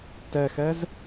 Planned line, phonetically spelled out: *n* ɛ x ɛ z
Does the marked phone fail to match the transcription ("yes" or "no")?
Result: yes